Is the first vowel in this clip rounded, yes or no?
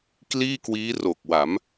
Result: no